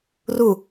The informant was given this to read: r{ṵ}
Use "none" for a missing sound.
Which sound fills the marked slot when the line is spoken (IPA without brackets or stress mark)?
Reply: u